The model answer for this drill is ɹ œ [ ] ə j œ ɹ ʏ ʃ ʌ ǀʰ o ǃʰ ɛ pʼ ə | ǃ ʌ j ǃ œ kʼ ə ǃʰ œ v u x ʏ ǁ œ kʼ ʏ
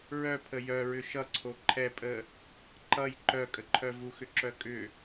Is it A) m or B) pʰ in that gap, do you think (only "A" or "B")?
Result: B